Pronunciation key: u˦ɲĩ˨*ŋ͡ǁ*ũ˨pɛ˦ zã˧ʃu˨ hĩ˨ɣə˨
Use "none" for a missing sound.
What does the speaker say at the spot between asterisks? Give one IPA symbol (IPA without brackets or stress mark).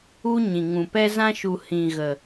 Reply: ŋ